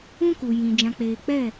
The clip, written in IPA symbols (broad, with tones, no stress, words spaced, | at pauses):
ũ˦ku˨ jĩ˨ d͡ʒã˨k͡peː˨k͡pɛ˦˨